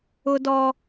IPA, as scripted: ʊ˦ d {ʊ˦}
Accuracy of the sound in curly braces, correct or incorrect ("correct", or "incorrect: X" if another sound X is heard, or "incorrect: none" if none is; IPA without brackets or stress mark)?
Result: incorrect: ɔ˦